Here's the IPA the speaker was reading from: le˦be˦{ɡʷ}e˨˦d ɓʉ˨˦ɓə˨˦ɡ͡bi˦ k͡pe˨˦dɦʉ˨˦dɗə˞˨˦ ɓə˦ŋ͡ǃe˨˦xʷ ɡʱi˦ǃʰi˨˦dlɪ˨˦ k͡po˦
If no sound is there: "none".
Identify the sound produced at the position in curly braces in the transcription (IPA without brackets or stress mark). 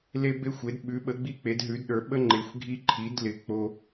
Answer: xʷ